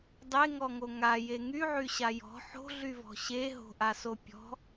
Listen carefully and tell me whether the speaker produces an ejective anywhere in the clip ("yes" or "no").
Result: no